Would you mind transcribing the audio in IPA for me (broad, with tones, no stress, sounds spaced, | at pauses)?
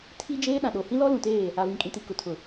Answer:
tʰ i˦ d͡ʒ eː˦ ɗ ã˨ ɗ o˨ h ĩ˦ l ɔ˦ l ũ˨ t eː˦˨ | a˨ v ĩ˨ kʼ ĩ˨ t i˨ k ʊ˨ tʰ ʊ˨